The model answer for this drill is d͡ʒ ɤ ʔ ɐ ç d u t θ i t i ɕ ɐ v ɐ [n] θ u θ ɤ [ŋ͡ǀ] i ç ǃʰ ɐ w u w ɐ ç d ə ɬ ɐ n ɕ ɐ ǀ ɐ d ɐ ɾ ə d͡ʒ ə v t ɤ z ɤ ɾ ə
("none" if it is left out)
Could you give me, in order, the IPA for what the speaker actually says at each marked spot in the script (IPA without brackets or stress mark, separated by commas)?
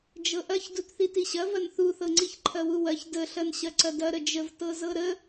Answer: n, ŋ͡ǀ